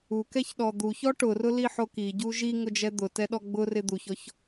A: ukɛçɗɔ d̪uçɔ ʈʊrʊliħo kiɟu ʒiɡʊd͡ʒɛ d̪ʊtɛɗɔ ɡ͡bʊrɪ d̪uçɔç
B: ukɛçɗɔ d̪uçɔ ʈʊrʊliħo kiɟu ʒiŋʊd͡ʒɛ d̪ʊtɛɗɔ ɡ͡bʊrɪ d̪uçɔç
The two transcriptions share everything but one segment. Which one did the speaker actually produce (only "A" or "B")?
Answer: B